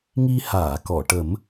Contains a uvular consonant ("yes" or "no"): no